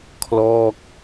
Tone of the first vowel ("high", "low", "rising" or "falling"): falling